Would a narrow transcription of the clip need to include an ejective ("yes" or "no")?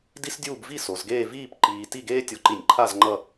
no